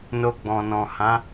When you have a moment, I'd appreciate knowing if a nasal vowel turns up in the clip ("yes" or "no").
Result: yes